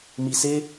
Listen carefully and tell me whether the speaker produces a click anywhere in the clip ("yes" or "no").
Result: no